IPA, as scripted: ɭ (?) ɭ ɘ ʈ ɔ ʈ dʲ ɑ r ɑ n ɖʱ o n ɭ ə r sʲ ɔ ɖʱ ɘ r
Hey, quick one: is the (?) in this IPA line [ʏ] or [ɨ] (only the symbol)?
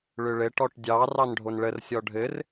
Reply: ʏ